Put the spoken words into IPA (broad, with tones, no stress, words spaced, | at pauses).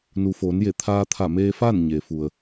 nu˩foː˩˧n je˧˩t̪ʰaː˧t̪ʰa˧˩ meː˧fa˥˨n ɲe˩fu˩ə̯